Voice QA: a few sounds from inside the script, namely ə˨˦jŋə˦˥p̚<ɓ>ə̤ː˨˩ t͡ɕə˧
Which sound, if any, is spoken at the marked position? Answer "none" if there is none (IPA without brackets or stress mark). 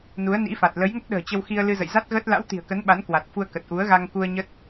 ɗ